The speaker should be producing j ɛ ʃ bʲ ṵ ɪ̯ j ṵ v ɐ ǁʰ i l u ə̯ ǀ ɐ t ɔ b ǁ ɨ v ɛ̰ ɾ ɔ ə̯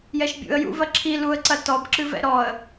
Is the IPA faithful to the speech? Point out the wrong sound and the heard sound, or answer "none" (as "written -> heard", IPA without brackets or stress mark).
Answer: ɪ̯ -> ə̯